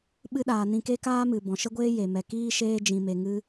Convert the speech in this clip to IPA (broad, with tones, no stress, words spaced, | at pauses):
ɓɨ˧ɗaː˨ nĩ˧ke˦kaː˦ mɨ˨ bɔ̃˨ʃə˦ɡʷeː˦ je˨mɛ˨ kiː˦ʃeː˦ d͡ʒĩ˧me˧ ŋɨ˦